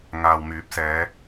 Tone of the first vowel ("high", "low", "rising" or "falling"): low